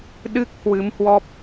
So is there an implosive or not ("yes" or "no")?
yes